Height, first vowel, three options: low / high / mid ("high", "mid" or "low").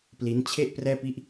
high